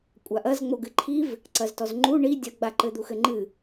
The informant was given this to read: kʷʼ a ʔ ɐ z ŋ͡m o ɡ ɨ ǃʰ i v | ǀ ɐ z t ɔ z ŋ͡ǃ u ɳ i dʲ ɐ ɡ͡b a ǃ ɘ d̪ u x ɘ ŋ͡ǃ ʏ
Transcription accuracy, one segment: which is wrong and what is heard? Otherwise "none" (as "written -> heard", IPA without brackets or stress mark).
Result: ʏ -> ɨ